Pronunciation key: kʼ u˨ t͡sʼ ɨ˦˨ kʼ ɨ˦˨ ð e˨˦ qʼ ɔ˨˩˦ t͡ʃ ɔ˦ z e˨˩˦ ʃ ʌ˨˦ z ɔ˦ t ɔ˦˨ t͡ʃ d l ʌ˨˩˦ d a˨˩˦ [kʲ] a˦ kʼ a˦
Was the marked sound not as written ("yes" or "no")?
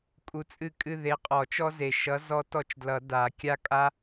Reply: no